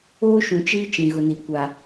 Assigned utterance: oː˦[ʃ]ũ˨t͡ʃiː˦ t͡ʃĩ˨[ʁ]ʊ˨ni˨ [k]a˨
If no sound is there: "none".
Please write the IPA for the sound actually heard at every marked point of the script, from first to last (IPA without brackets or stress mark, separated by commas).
ʃ, ɣ, kʷ